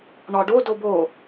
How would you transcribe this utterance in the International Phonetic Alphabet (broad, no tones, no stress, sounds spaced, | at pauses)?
ɳ ɒ ɖ o d o b o